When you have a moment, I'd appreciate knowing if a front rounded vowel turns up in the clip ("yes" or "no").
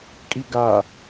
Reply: no